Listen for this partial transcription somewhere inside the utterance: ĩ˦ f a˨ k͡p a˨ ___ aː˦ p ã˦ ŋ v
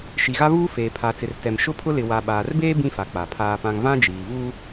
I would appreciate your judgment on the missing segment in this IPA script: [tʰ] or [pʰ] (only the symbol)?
pʰ